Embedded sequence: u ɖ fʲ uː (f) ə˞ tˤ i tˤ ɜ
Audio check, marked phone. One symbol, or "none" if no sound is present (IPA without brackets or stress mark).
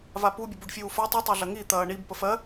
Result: f